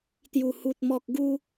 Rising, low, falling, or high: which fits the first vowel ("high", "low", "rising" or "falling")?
low